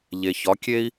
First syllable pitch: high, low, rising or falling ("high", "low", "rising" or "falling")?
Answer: low